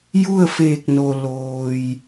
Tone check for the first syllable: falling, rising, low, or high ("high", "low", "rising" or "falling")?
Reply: falling